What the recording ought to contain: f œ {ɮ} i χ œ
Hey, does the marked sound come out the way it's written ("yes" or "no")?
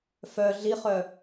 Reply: yes